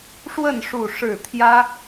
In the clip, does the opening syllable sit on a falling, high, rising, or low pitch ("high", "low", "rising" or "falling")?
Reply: falling